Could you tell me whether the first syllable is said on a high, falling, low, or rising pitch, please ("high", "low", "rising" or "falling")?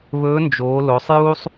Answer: rising